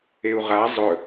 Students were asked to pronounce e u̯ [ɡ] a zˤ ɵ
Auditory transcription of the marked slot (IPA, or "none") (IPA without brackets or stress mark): ʁ